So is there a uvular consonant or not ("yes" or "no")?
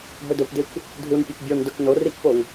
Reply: no